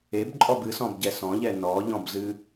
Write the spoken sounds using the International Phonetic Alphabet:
ebǃʼɔb ɨsɔ̃bɟɛ sɔ̃ʎɛ nɔʎɔ̃bzɨ

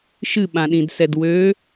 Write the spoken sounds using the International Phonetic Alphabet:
ʃɨɓãɗĩdsɛd wø

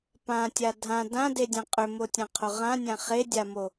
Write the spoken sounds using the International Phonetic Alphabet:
pãtʲa dʱã dãdedʲã qʼʏmotʲãqʰo ʁãnʲã χedʲamo

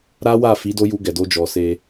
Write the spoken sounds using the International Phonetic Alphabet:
ɾa˦wa˦˨fi˨˦ do˦ju˧ ɡɛ˨do˧d͡ʒɔ˨ se˧

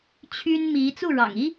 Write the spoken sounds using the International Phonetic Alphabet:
t͡ɕʰy˥nmi˧˥ t͡su˥˩ɻɑ̰˨˩ŋi˥

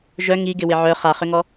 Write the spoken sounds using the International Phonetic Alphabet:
ʒœ ŋi ɡɪwɪʕœ χaχʏŋɔ

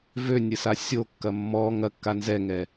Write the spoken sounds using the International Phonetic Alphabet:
vønʲɾʲə sasʲokːɐ mːɔ ŋɐkːa nzɛŋɛ

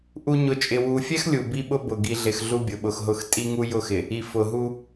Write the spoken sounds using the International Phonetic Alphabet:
ʔu˦ ɲʊ˨t͡ʃʼɪ˨wu˨fʲɛ˦x lʲu˨bi˦ɓʊ˦ bʊ˨ ɡi˨ɮɪ˨x ɮu˦bʲʊ˨ɓʊ˨xɦʊ˦˨x tʼi˦ŋu˦jʊ˦˨xɪ˨ | i˨ fʊ˨ɦu˦

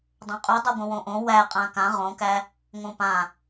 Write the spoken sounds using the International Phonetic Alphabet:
dˤõqʼʉ dˤʉɡʷə̃wõʔõ wæ qʼãkã ʁõkæ | ŋõpã

